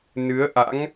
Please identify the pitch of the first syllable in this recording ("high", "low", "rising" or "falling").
rising